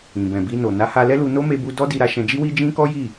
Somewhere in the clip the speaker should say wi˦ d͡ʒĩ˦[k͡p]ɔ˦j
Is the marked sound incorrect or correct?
incorrect